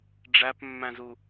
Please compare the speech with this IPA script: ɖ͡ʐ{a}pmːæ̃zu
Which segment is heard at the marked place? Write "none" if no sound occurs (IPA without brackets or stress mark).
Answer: æ